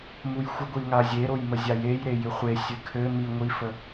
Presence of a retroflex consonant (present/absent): absent